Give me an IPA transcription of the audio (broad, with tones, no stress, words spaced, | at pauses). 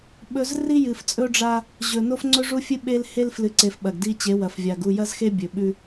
ɓɵ˦z ri˦jɨ˨ft͡sʼɵ˦ɖ͡ʐa˦ | ʑɵ˨ no˦fŋ͡ǀɵ˦ʐu˦fʲɨ˦ ɓe˦lhe˦lflɨ˨ǀe˨f ɓɐ˨ɡdi˦ t͡ɕe˨˦wɐ˨fvʲa˨ɡ u˦˨jɐ˦zxe˦ bʲɵ˨ɓʉ˦